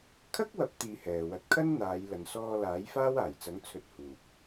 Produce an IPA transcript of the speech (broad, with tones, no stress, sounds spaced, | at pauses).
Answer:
kʰ ɐ˥ k̚ w ɐ˨˥ p̚ t̪ iː˧ h ɛː˨ w ɐ˧ t̚ kʰ ɐ˥ n n̪ aː˨˧ j l ɐ˨ n s ɔː˧ l aː˨˥ j f aː˥ w aː˨˩ j t͡s ɐ˨˥ ŋ t͡sʰ ɵ˧ t̚ h uː˨ p̚